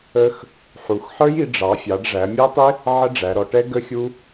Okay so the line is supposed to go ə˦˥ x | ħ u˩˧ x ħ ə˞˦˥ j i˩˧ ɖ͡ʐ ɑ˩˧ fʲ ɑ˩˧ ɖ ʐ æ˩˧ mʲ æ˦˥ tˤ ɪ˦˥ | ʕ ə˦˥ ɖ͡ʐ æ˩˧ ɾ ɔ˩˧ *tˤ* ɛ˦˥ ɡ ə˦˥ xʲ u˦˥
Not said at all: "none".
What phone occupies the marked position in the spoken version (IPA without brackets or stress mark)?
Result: ʈ